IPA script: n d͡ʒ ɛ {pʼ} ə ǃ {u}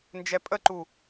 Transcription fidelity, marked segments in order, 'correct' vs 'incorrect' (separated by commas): correct, correct